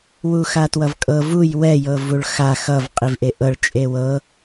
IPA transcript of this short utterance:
w u x a t w ʌ v kʼ ɤ v u j w ɛ j ɤ v u ɭ x a x ʌ v qʼ i v ʔ e ʔ ɤ ɭ t͡ʃʼ e w ɤ

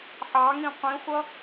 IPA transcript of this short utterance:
ħ ɑ ŋ ĩ qʷ ĩ χʷ ʌ

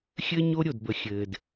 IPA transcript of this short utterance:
xʲ ɘː˦ ɲ o˦ ɾʲ o˨ d b ə˨ xʲ ɘː˨ d

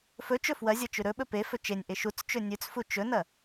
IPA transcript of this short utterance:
f ɵ t͡ʃ ɵ f w ɐ zʲ ɐ t͡ʃ ʉ ɾ ɵ ɓ ɵ p e f ɵ t͡ʃ e nʲ ʔ e ʃ u t͡s t͡ʃ ɵ nʲ ʉ t͡s f u t͡ʃ ɵ n ɐ

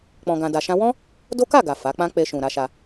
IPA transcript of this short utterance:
k͡p ɔ̃˧ ɡ ã˧ d a˧ ʃ ã˦ w ɔ̃˦ | d o˦ k a˦˨ ɡ a˨ f a˨˦ k͡p ã˦ k͡p e˧ ʃ ũ˨ ɾ a˧ ʃ a˧

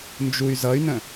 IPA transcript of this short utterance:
n d͡ʒ u y̯ z ʌ y̯ n ə̃

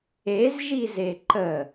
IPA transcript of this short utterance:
e z ʒ i z e ǃ ə

